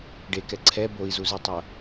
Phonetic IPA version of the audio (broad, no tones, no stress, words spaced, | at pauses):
ɖekɛ ǀʰɛ boi̯zuzitˤo